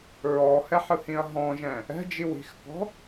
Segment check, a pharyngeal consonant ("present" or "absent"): present